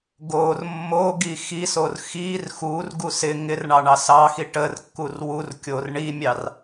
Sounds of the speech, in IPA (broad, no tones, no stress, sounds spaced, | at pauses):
ɡ o r mː o ɡ i x i s o r x i r x u r ɡ u s ɪ ŋ ɪ r ɳ ɑ ɳ ɑ s ɑ x i ʈ ə r kː u r w u r kʲ o r ɳ i mʲ ɑ r